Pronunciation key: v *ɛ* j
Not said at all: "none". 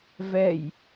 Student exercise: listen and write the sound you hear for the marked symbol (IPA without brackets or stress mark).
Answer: ɛ